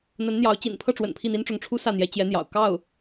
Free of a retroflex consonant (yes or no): no